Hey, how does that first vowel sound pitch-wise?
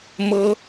high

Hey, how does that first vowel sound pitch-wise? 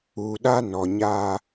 low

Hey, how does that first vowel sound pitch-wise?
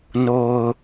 low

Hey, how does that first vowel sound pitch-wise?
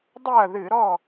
falling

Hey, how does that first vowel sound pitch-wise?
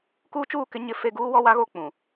high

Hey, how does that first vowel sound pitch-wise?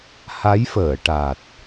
rising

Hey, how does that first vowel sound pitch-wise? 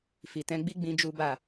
low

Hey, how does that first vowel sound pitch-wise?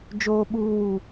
high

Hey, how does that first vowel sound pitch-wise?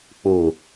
low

